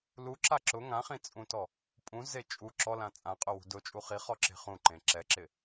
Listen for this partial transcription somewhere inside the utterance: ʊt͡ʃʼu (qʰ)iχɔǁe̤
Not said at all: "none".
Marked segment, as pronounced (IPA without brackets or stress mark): χ